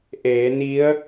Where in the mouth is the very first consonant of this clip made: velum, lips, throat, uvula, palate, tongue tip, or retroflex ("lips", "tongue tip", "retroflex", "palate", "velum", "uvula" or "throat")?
throat